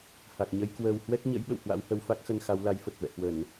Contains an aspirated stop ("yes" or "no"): no